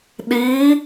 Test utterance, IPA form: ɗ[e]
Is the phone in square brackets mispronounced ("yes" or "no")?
yes